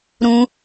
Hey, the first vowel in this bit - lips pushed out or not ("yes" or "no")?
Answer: yes